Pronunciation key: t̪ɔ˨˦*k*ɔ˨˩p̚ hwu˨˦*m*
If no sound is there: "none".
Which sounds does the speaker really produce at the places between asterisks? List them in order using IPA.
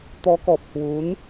k, n

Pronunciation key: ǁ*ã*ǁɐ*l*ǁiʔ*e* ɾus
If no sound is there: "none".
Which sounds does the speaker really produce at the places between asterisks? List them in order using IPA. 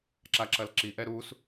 a, l, ɛ

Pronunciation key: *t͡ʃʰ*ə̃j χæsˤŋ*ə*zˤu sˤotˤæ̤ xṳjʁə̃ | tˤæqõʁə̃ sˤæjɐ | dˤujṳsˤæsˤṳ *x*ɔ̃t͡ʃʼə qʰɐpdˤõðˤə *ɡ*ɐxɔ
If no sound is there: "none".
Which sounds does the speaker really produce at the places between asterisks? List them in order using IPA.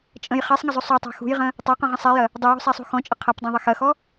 t͡ʃʼ, ə, x, x

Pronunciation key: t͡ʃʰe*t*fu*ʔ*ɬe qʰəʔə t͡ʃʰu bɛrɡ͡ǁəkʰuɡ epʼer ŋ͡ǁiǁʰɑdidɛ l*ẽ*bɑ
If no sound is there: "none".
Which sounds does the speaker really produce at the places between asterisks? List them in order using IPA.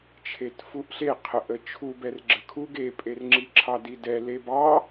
t, ʔ, e

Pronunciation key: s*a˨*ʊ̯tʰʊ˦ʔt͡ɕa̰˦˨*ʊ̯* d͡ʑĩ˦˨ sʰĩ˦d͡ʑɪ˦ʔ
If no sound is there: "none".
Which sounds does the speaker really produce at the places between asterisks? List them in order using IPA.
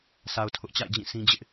a˨, ɪ̯

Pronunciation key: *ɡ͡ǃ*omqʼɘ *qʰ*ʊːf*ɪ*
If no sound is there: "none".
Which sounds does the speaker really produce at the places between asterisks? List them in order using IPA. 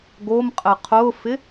ɡ, qʰ, ɪ

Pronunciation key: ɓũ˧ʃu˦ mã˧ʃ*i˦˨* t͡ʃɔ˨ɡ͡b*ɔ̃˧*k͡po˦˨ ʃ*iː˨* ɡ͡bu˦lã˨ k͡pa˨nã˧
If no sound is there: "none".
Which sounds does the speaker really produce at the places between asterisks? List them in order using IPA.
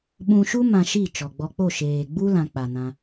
i˦˨, ɔ˧, eː˨

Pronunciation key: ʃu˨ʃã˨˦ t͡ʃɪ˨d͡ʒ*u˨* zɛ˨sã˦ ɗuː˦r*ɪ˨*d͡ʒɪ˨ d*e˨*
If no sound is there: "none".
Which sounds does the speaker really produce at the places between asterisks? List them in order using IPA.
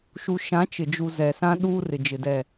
u˨, ɪ˨, ɛ˨

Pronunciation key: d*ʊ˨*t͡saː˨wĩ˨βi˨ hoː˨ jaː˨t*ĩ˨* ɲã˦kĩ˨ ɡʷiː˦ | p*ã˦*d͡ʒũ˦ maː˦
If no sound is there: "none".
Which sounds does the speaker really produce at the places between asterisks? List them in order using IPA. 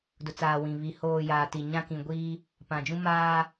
ʊ˨, i˨, ã˨

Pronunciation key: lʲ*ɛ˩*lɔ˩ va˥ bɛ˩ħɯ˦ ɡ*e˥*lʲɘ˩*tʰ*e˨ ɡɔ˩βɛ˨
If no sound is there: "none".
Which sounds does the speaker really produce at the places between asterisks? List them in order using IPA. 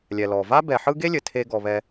ɛ˩, e˥, tʰ

